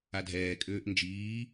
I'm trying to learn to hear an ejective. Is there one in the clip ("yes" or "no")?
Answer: yes